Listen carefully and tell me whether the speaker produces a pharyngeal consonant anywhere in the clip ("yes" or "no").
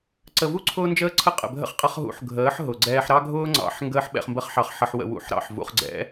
yes